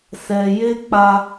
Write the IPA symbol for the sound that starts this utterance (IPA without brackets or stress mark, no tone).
s